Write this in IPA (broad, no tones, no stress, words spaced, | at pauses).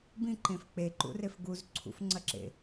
bĩǃẽf k͡peǃṵref ɡuz ǀʰṵfŋ͡ǀɐǁḛ